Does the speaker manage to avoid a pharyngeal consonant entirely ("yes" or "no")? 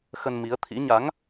yes